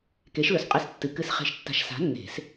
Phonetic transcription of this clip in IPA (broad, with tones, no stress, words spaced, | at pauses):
ke˨˥ʃlɵ˨sqʼɨ˧˥˧stːɨ˨ kɨ˨˩˦sχe̤˨˩˦ʃtːa̤˨ʃ sa̤˨˥nːe̤˨˩˦s